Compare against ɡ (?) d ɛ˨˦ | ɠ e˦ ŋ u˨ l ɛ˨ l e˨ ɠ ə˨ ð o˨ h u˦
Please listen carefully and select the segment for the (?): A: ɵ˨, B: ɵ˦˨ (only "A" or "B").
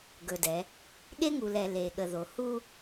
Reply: A